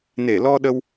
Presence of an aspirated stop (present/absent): absent